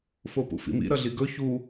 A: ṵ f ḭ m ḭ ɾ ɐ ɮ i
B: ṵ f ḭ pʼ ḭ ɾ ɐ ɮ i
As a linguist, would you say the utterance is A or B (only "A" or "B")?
A